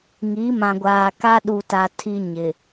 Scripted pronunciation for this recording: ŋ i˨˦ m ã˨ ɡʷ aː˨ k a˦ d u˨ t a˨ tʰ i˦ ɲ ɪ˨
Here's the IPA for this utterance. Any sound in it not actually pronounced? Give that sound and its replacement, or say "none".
d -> ɗ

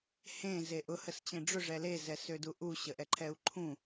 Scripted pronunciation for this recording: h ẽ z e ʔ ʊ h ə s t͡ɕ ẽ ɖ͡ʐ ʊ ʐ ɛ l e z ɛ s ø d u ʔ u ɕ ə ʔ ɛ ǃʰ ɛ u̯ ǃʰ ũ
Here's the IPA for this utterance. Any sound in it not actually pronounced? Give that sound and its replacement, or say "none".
none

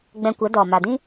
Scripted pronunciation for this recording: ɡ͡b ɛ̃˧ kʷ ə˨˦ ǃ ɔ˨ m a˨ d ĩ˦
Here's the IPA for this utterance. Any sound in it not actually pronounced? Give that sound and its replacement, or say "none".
ǃ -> d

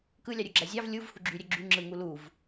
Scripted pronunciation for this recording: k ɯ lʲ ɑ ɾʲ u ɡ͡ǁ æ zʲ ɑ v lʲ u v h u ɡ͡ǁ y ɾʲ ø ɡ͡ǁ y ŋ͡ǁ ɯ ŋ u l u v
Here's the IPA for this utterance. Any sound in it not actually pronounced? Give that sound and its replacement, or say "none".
none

